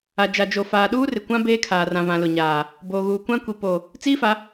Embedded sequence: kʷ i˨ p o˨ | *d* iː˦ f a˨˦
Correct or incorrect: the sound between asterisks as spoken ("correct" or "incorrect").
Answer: incorrect